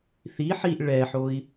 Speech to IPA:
θ i ħ i ʔ ɭ ɛ ħ o i̯

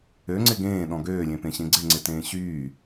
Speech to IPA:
ø ŋ͡ǀ ɪ ɡ ẽː ɗ ɔ̃ ɡ øː lʲ ẽ p ẽ ɕ ẽ ɡ͡ǀ ɪ ŋ͡ǀ ɪ t ẽː ɕ yː

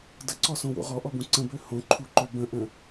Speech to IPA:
d ə ǀ ɔ s õ w o̰ ʁ ɔ ʔ ɔ b ũ ǀ ə̃ b ø h õ ǃʰ u ǃ ø b ə̃ ʔ ə̃

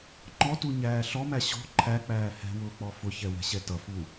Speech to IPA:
ŋ͡ǃ ɔ t u ɲ æː ɬ ɔ m æ ɕ ɔ̤ ǃʰ æ k͡p æː h ɛ̤ w ʊː k͡p ɔ f ʊ ç ɛ w ɛ̤ ɕ ɛ t ʌ f u

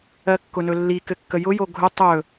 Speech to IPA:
ɜ kː ʊ n ɵ lː i k ɘ kː ə j ʊ j o ɡʱ ʊ tˤ ɵ

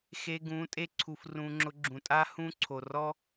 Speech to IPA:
x e˧ ɡ ũ˨˦ tʼ e˦ ǀʰ u˧ f r ũ˧ ŋ͡ǁ ʊ˧ ɡ͡ǁ ũ˨ tʼ a˦ h ũ˦ ǀʰ o˨ r ɔ˦

